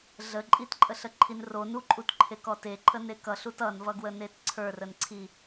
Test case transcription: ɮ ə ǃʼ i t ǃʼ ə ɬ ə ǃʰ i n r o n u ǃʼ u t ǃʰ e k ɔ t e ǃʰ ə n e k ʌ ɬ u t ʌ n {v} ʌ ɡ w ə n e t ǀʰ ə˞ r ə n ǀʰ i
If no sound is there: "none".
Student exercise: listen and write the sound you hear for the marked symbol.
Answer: v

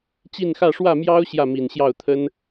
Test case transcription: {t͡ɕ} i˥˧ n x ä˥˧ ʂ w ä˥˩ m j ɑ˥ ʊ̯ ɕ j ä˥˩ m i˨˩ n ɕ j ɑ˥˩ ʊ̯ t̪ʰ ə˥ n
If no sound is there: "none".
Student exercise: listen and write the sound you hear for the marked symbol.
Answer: t͡ɕ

